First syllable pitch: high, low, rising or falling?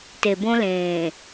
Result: low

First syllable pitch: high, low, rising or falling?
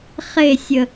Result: falling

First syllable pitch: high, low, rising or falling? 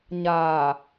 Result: low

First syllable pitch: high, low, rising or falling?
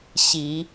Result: rising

